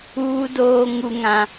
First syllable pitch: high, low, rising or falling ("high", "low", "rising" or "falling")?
high